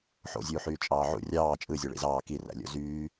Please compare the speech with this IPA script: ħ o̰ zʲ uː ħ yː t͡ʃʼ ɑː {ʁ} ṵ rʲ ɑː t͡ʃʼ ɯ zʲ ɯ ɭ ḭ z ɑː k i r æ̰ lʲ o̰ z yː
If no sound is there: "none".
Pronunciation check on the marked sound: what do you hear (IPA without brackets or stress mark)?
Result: ʕ